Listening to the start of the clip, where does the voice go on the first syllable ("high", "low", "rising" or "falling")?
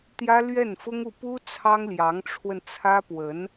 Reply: high